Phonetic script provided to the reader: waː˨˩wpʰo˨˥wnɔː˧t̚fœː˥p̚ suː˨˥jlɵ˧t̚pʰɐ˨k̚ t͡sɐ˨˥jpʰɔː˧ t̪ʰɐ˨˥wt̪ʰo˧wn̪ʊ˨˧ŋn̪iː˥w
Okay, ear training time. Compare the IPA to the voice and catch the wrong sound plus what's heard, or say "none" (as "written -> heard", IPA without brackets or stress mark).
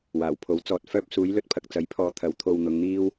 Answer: n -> t͡s